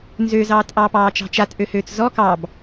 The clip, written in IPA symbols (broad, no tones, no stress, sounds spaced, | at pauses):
n z ø z ɑː t ʔ ɑ p ɑː t͡ʃ ɑ̤ t͡ʃ a t ʔ ø h øː t͡s z ɔ k ɑ b